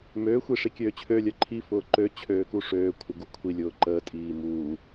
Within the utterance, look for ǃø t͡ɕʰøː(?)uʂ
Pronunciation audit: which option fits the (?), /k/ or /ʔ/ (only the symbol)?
k